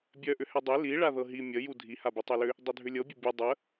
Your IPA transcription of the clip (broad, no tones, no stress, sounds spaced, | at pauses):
bʲ œ ʔ ʏ h ɛ dˤ e l i ɭ a ð ɤ ɦ i mʲ ə j u dʱ i h a b i tˤ œ l ʏ | dˤ œ dʱ ʏ lʲ ɤ bʲ ə bʲ ɛ dˤ ə